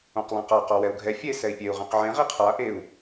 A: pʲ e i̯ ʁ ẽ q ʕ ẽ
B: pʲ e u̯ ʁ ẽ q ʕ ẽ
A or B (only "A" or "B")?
B